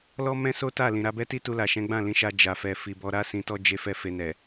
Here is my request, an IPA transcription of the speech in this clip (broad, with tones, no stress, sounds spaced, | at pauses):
l ɔ˦ m ɛ̃˦ s o˦ t a˦˨ l ĩ˨ ɾ a˧ b ɛ˦ t i˦ t u˧ l a˨ ʃ ɛ̃˨˦ ɡ͡b ã˦˨ l ĩ˨˦ ʃ a˧ d͡ʒ a˨ f ɛ˨ f i˨ b ɔ˨˦ ɾ a˦ s ĩ˧ t ɔ˦ d͡ʒ e˧ f ɛ˦ f e˧ n ɛ˨